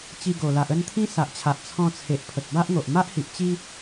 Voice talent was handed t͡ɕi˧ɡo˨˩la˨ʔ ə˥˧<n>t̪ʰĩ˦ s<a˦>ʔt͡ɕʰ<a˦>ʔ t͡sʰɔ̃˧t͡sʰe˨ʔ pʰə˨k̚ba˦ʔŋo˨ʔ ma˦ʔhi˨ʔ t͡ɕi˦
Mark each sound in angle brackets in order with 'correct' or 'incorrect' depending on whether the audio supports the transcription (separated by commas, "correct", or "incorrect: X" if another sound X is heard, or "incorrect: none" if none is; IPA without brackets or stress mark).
correct, incorrect: a˨, incorrect: a˨